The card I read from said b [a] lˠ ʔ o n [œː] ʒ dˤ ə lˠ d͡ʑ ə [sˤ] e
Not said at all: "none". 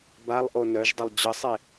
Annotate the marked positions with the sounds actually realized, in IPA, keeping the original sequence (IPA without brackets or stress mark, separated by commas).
a, œ, sˤ